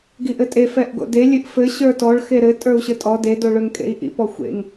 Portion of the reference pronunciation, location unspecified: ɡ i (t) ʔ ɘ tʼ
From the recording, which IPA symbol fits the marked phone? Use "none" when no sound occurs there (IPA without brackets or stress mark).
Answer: none